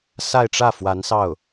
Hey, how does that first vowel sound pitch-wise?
falling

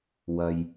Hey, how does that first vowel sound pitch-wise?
low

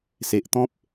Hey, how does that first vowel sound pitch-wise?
low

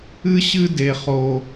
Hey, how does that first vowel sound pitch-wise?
high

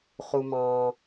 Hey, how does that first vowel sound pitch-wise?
low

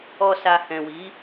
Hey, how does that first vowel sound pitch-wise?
low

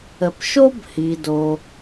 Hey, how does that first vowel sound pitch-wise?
low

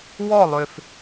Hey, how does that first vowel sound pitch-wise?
falling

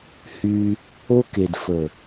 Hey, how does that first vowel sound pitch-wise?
high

